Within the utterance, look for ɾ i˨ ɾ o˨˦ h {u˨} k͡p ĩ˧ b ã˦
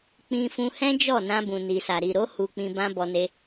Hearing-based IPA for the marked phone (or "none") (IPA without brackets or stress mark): u˧